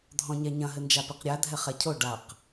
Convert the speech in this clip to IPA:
dʱɔ̃ɲɛɲɐ̃ ɦɘnd͡ʒapiqɾʲa dʱɛχɛcʰo ɖaq

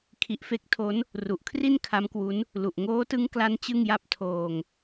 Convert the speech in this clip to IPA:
kʰi˨˩ʔfe˦˥k̚tʰo˦˥n | ru˨˩ʔkʰri˥˩n kʰa˦˥mkwu˦˥n | lu˨˩ʔ ŋoː˦˥tɯ˦˥ŋ kla˦˥n t͡ɕɯ˥˩ŋja˥˩p̚ tʰoː˧ŋ

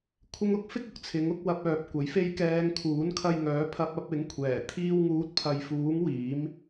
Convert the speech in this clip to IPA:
kʷʰɪ˥ŋ ʊ˥k̚fɪ˥k̚ʊ˧k̚ t͡sʰɪ˨˥ŋ ʊ˨˥k̚wɐ˧p̚œː˨p̚ kʷɐ˨˥jfe˥j kɛː˨˧ŋ kʰuː˨˥nkʰɐ˧jŋœː˨˥ pʰɐ˧p̚ɐ˨˥p̚ɪ˨˥ŋ kʷʰɛː˨˩ t̪ʰiː˧wŋuː˨˥t̚pʰɐ˨jfuː˨˥ŋ wiː˨˥m

